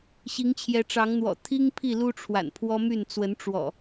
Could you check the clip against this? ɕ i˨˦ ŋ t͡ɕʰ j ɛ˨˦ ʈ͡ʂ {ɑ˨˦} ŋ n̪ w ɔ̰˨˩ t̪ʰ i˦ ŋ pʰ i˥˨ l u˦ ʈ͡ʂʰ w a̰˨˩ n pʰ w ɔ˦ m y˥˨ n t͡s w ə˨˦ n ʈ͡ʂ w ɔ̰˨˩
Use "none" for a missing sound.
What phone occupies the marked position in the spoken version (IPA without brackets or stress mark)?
ɑ˨˦